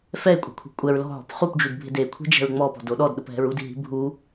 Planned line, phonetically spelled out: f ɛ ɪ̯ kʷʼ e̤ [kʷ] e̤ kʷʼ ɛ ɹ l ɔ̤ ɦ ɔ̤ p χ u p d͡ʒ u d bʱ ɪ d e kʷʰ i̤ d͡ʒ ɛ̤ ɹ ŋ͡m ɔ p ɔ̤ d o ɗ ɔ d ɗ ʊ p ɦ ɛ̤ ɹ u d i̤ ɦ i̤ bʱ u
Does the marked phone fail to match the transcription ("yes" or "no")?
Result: yes